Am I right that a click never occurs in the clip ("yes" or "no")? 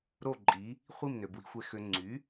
no